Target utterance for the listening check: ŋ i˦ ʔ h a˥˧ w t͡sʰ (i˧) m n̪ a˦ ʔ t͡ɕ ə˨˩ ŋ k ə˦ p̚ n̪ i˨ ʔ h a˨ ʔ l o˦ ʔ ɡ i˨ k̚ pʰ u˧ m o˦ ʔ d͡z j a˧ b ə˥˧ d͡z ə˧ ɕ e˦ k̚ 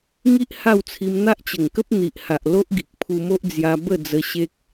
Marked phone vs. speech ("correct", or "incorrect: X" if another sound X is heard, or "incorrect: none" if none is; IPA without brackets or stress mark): correct